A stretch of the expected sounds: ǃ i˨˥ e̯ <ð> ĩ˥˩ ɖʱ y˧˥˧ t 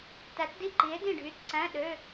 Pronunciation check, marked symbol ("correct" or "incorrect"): incorrect